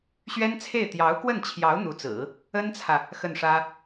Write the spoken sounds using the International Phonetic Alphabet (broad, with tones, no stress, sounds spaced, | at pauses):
ɕ ɥ ɛ˥ n t͡sʰ e˥˩ ɪ̯ t̪ j ɑ˧˥ ʊ̯ k w ə˥˩ n t͡ɕʰ j ɑ˧˥ ʊ̯ n̪ u˧˥ t͡s ɹ̩˨˩˦ | ə˥ n t͡sʰ ä˨ | x ə˥˩ n ʂ ä˥